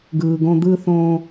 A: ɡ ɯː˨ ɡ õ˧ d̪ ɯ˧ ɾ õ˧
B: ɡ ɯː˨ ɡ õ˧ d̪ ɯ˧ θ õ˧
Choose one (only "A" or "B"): B